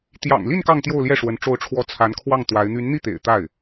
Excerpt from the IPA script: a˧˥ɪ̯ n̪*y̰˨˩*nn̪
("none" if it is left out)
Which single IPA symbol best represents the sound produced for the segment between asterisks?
y˧˥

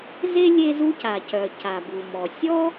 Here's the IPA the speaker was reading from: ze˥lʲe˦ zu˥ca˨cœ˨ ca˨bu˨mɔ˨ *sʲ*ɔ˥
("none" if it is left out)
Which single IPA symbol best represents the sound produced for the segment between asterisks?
sʲ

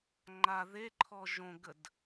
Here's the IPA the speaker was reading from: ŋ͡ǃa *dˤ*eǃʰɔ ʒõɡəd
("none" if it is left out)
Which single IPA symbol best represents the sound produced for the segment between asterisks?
ð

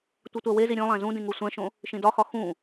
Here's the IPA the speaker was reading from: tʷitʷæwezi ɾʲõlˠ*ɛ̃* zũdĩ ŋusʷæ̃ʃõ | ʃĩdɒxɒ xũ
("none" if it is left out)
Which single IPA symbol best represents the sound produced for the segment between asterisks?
æ̃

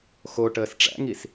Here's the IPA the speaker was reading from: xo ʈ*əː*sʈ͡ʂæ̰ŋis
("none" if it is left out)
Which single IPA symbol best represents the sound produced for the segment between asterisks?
əː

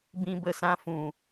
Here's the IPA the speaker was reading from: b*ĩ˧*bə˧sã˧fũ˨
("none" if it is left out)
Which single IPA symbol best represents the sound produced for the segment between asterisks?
ĩ˧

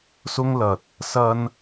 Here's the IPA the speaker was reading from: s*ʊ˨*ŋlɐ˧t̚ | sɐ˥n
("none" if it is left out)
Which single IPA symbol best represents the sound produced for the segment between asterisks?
ʊ˥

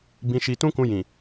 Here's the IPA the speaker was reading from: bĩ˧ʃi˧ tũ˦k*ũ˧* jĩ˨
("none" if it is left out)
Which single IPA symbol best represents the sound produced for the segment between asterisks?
ũ˧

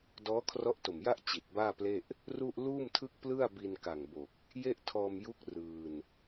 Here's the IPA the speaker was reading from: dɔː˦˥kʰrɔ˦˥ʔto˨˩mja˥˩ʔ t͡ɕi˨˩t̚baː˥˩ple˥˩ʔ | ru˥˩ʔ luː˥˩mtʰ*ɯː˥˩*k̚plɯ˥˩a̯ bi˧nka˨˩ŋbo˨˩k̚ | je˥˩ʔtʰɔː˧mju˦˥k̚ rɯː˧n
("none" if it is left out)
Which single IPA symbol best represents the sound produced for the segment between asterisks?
ɯ˥˩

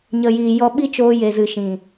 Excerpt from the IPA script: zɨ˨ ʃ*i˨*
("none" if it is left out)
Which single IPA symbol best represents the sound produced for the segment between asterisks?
ĩ˨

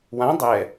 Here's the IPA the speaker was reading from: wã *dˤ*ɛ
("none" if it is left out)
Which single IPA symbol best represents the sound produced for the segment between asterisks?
dˤ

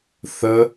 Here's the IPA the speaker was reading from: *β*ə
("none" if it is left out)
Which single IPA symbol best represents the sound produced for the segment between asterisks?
θ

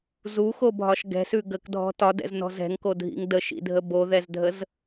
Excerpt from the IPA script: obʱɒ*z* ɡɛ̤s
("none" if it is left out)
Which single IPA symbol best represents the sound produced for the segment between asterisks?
ʃ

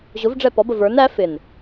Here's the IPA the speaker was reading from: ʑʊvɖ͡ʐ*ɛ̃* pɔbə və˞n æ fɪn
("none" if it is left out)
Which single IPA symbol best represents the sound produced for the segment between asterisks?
ɛ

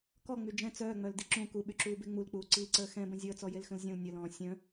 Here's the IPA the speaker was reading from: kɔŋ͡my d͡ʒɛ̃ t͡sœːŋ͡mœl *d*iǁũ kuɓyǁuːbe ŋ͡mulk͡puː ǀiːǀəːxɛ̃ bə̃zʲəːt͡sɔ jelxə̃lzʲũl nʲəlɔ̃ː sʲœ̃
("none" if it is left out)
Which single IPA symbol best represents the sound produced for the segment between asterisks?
d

